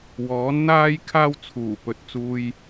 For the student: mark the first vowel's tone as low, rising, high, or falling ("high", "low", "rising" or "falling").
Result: rising